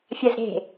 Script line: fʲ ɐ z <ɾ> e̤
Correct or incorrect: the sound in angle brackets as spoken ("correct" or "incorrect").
correct